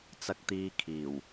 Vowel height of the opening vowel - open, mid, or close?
open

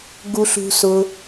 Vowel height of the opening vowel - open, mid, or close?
close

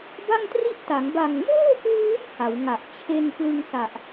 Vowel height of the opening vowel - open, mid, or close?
open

